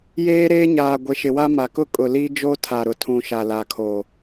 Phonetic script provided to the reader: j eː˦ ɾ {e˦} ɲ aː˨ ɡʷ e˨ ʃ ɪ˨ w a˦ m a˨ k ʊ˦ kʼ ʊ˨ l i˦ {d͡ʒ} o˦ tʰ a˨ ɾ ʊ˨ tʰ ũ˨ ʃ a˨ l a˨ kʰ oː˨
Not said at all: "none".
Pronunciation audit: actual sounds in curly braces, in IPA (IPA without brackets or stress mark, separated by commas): eː˦, d͡ʒ